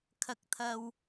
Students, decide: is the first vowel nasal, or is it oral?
oral